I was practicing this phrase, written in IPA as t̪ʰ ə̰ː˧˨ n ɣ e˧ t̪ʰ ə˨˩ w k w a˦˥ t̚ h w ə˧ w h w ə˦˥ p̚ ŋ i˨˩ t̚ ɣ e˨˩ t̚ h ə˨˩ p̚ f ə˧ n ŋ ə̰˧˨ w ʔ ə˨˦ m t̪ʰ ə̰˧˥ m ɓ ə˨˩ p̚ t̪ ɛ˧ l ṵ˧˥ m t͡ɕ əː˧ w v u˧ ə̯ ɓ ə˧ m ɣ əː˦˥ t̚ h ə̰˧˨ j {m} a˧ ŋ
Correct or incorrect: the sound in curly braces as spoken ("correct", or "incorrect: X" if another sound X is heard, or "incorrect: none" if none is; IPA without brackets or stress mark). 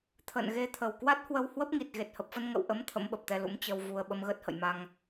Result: correct